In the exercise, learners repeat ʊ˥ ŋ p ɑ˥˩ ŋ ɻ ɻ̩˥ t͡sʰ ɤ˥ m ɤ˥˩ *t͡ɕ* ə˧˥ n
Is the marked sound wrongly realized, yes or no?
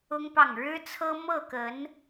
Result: yes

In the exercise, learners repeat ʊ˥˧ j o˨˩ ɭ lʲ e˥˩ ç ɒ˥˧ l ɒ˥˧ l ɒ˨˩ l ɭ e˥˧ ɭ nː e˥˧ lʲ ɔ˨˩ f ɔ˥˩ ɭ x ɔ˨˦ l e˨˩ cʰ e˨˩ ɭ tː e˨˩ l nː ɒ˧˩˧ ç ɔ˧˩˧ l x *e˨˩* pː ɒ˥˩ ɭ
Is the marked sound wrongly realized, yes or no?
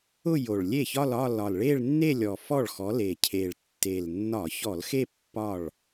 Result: yes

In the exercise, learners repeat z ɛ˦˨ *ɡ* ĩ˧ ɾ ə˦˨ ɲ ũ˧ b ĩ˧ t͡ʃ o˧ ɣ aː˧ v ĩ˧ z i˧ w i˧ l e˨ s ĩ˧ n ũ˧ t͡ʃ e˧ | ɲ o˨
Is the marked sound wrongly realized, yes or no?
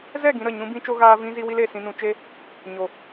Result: no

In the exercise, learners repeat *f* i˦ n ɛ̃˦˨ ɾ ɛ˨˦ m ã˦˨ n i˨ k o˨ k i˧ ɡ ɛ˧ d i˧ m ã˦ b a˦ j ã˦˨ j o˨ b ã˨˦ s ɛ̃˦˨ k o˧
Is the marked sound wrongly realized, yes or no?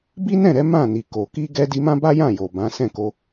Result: yes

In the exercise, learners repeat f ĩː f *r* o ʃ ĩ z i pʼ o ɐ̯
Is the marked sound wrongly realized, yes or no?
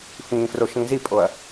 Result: no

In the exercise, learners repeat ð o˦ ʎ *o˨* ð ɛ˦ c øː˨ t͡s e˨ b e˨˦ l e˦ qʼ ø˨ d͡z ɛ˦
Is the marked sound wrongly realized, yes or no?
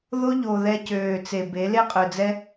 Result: no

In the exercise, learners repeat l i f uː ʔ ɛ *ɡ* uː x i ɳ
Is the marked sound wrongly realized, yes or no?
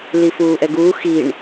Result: no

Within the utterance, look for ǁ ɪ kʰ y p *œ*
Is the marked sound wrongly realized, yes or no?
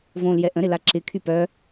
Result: no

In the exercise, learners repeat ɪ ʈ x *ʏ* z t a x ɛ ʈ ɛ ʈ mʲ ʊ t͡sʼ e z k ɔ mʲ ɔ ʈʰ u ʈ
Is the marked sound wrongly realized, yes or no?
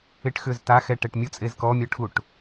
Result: no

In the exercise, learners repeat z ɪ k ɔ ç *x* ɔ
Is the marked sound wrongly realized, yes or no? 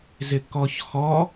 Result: no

